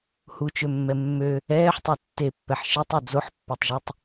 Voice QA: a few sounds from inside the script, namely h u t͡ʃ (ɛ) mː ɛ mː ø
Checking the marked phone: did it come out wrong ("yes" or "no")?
yes